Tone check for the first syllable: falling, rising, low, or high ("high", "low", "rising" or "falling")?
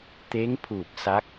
rising